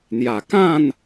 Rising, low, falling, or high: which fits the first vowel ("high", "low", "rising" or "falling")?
low